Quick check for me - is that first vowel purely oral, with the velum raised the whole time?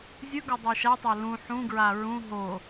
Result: yes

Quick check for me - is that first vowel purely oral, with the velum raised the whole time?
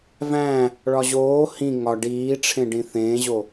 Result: no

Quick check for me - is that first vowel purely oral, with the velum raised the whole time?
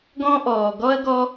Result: no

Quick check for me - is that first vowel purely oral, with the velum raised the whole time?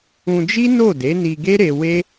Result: no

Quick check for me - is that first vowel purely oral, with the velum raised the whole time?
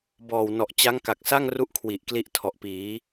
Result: yes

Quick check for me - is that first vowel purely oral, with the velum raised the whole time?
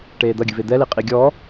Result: yes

